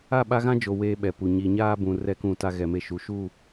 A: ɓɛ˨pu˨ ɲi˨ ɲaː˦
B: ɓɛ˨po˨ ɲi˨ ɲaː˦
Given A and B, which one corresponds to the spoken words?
A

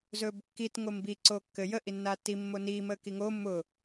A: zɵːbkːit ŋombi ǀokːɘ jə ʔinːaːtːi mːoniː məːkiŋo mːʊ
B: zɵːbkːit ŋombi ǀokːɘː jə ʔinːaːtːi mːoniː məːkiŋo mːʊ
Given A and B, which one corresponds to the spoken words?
A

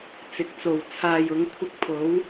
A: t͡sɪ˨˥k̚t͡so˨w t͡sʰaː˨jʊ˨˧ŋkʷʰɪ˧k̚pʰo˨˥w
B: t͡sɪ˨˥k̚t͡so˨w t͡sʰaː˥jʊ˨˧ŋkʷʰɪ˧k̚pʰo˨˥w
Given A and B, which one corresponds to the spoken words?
A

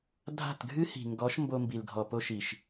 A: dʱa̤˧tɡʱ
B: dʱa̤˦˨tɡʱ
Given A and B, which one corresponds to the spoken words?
B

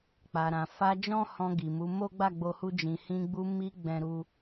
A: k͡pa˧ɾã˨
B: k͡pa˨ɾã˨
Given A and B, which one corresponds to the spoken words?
B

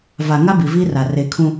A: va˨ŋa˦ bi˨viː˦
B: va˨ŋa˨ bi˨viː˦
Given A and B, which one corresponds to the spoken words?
A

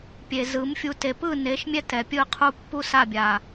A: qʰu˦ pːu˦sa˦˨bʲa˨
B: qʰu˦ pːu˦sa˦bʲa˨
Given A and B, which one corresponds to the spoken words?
A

